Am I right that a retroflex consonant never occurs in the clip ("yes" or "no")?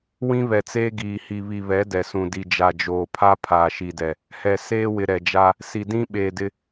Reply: yes